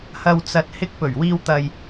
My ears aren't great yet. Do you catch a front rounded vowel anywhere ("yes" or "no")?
no